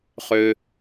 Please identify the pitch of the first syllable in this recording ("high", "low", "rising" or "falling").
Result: low